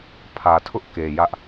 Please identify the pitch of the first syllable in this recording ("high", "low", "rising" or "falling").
low